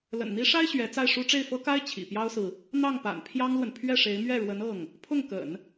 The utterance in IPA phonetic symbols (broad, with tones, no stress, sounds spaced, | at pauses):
l ə̰˨˩ n n̪ i˧˥ ʂ a˥ ɪ̯ ɕ ɥ ɛ˧˥ t͡s a˥˩ ɪ̯ ʂ u˥ ʈ͡ʂ e˥˩ ɪ̯ f ɤ˥ k a˥ ɪ̯ t͡ɕʰ ḭ˨˩ p j ɑ˥ ʊ̯ s ɹ̩˨ | n̪ ɑ˥˩ ŋ p a̰˨˩ n pʰ j ɑ˥ ŋ l w ə˨ n pʰ ɥ ɛ˥˩ ʂ e˧˥ ɪ̯ m ɥ ɛ˥˩ ɻ w ə˧˥ n ɤ˥˩ ŋ | pʰ ʊ˥˩ ŋ k ə̰˨˩˦ n